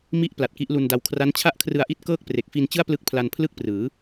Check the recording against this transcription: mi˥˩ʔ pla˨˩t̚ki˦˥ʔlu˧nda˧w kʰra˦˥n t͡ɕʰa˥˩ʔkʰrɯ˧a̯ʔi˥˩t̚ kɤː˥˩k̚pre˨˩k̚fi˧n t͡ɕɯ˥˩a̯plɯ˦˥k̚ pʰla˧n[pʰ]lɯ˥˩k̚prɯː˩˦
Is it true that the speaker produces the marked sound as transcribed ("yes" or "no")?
yes